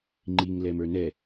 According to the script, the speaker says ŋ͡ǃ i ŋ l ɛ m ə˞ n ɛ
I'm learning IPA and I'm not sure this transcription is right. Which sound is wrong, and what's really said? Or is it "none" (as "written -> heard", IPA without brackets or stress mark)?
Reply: none